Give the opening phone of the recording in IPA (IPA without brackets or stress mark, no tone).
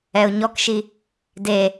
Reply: ɛ